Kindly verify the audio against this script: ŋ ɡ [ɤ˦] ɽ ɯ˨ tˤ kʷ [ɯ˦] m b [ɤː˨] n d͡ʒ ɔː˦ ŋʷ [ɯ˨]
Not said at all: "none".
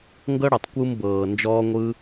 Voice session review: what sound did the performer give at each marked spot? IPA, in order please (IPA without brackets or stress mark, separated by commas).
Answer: ɤ˦, ɯ˧, ɤː˨, ɯ˦